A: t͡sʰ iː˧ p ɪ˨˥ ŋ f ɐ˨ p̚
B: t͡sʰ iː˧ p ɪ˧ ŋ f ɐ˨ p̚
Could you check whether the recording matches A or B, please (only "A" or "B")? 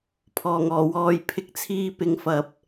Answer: A